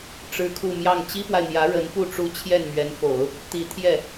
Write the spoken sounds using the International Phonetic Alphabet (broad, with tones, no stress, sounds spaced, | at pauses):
ʈ͡ʂ ɻ̩˥ kʰ u˥˧ m j ɑ˥˩ ŋ t͡ɕ i˥ p w a˨ ɪ̯ n̪ j ä˧˥ ɻ ə˧˥ n p u˥˩ ʈ͡ʂ u˥ t͡ɕʰ j ɛ˥˩ n m ɥ ɛ˧˥ n f o˨˩˦ ʊ̯ | t̪ i˧˥ t̪ʰ j ɛ˥˩